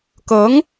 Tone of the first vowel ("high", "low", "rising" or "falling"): rising